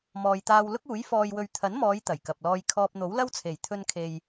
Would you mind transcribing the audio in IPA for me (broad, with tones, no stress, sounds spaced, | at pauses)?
m ɔː˨ j t̪ aː˧ w l ʊ˥ k̚ uː˨˥ j f ɔː˧ j w ɵ˨ ɥ t̪ʰ ɐ˨˥ n m ɔː˨˧ j t̪ ɐ˨˩ j k ɐ˨ p̚ l ɔː˧ j kʰ ɔː˧ p̚ n̪ o˨˥ w l ɐ˥ w t͡sʰ e˨˩ j t̪ʰ ɵ˧ n kʰ e˨ j